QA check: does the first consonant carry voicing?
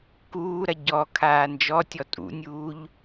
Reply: no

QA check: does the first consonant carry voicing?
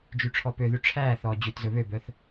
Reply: yes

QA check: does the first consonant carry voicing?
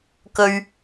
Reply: no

